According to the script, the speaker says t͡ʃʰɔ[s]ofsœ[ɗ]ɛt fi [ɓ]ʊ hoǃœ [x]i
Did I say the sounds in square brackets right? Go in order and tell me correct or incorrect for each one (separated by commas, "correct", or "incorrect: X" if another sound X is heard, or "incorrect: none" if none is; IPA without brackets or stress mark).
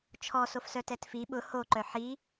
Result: correct, incorrect: t, correct, incorrect: ħ